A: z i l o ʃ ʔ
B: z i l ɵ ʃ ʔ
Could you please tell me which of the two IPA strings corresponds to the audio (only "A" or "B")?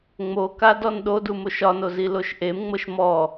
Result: A